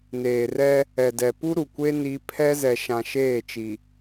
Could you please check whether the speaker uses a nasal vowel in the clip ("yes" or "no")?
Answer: yes